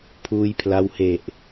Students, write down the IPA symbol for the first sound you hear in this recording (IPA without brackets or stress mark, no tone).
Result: pʰ